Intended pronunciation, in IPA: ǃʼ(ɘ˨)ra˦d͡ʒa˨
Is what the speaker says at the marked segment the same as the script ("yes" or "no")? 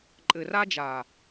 yes